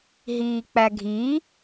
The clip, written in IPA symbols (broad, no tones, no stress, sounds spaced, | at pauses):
ɦ iː k͡p æ ɡʱ i